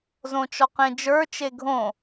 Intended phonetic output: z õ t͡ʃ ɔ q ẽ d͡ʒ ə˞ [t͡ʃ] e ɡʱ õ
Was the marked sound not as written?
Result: no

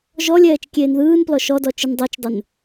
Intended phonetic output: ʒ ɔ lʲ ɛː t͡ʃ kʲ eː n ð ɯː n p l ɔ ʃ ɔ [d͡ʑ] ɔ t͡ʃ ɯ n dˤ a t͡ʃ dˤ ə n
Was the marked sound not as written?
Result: yes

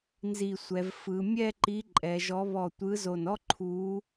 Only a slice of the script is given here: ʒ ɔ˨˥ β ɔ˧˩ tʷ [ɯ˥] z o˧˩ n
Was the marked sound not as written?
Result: yes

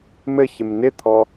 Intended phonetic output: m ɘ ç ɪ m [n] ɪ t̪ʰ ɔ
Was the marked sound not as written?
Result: no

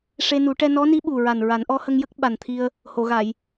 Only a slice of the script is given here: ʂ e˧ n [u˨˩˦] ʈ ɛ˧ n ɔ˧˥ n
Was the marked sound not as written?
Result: no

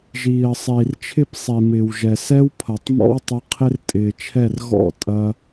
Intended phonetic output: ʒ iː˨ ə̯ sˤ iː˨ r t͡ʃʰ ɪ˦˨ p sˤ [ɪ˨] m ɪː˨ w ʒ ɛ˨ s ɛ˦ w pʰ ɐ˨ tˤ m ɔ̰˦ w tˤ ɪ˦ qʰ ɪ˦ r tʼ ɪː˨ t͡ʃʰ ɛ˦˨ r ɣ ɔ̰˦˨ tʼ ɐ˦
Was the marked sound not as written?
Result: yes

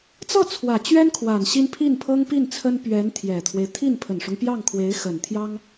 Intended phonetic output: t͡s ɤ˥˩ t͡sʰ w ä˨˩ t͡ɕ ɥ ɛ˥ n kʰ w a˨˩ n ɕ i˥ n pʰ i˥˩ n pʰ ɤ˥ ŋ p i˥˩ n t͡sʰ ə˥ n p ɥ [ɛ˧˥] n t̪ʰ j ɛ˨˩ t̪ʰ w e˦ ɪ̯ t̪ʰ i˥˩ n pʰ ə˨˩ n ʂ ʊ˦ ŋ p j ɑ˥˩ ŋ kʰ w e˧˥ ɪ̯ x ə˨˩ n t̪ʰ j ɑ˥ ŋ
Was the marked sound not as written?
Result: no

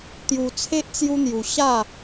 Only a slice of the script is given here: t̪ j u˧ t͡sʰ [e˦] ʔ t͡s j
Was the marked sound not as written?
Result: no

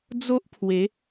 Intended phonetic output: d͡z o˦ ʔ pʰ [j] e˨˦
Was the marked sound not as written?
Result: yes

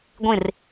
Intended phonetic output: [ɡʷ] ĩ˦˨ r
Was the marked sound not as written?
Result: no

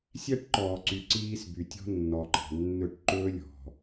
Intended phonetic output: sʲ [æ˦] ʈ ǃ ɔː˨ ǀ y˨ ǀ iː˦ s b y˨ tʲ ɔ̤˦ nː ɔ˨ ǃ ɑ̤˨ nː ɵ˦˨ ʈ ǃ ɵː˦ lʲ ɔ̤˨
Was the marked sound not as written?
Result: no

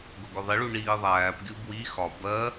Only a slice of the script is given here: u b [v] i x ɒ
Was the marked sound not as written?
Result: yes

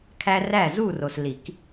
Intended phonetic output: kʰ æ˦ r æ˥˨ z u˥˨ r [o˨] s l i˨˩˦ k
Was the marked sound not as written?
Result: no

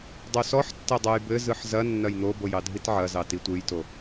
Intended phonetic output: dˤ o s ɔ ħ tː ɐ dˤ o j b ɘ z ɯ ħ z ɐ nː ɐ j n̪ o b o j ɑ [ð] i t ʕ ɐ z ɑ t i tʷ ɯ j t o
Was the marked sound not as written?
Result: yes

